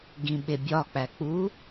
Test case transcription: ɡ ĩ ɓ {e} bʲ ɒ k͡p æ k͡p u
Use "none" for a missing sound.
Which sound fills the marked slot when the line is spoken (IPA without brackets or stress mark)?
e